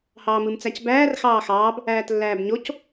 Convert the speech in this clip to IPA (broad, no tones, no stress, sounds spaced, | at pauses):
h ɑː m ɯ m t͡s æ c b æː r x ɑː x ɑː b | æː t lː æː b ɲ o c